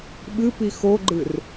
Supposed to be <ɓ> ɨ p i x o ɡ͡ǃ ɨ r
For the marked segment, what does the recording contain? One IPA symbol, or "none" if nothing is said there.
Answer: ɓ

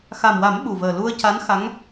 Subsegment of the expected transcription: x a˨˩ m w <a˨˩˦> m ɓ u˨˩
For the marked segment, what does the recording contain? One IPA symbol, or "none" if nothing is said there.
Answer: a˨˩˦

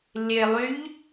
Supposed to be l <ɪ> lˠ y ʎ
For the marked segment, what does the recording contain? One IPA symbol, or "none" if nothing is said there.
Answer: ɪ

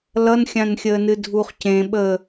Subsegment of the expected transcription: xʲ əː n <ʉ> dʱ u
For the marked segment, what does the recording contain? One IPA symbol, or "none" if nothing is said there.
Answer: ɨ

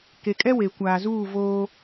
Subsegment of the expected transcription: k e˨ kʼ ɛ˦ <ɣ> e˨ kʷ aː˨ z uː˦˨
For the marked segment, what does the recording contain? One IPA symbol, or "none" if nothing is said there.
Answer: w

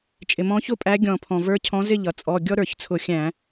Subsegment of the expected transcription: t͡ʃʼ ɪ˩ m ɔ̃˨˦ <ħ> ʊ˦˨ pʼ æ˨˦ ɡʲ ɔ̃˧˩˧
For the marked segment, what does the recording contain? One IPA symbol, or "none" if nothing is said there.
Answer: ç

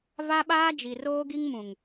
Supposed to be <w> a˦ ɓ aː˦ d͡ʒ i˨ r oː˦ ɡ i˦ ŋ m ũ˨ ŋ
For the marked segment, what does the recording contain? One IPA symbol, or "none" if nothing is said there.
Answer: v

